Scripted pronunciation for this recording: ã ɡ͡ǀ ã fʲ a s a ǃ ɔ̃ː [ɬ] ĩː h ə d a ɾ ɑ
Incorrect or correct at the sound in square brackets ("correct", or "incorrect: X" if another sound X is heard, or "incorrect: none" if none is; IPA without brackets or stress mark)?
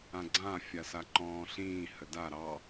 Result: correct